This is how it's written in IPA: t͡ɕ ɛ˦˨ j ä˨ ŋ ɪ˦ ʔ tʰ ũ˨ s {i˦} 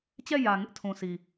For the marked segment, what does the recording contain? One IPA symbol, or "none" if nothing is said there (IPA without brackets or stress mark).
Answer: i˨